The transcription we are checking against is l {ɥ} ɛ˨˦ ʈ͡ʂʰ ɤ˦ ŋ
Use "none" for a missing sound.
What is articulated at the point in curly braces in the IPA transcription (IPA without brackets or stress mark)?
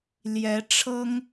j